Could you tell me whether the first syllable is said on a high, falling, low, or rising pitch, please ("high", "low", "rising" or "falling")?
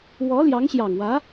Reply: rising